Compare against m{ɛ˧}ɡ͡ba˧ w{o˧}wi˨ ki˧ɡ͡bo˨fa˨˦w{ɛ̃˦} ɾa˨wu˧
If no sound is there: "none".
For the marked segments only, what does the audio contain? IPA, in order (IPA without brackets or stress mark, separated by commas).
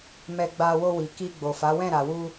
ɛ˧, o˧, ɛ̃˦˨